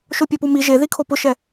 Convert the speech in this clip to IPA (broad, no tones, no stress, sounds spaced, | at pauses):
ʃ o pʲ ɔ p u m i ʒ e ð i kʰ o p ʊ ʃ ɛ